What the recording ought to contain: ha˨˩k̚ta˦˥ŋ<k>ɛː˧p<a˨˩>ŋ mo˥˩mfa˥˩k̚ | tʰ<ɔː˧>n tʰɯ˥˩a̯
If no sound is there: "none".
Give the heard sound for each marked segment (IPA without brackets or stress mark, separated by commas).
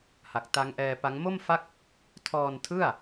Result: ʔ, a˦˥, ɔː˧